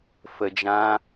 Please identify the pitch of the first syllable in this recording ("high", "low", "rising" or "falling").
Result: low